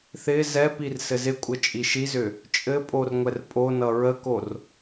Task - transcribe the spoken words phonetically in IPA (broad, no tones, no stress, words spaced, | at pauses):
θɪ zɛpir sɘzɪkʷʼə t͡ʃʼiʃizʏ | t͡ʃʼɘpʼor ŋʷɛrpʼonʌ ɹəkor